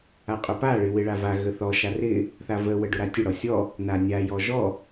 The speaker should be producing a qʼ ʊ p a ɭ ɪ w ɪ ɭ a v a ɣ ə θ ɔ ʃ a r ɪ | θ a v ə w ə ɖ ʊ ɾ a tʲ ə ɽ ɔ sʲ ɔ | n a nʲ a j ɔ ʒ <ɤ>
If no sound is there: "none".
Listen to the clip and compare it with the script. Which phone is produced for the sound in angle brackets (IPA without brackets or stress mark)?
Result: ɔ